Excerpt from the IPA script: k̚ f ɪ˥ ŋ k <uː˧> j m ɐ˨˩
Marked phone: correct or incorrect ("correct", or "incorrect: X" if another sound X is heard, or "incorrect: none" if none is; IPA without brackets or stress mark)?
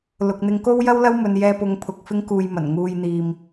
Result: correct